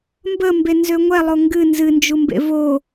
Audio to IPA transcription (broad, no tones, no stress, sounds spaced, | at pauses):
m b ə m b e n z ø ŋʷ ɛ lˠ o ŋ ɡ ɨ n z ɨ n d͡ʒ u m b ḛ v o